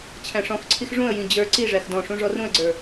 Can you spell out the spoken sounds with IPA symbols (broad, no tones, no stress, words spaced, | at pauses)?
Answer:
t͡ɕʰæ̃ʂɔ̃xǀʰix ʐũə̯jĩ d͡ʑə˞ ǀiʐæx dɔ̃ʂũ ʐɔrũə̯ɡ͡ǀə˞